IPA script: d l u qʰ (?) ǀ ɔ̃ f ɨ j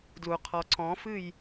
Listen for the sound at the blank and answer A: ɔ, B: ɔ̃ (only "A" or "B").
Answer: A